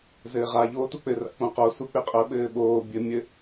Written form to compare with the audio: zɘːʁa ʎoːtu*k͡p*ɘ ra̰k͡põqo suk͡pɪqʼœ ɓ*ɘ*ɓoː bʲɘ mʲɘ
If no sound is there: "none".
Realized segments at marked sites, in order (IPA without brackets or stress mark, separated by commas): k͡p, ɘː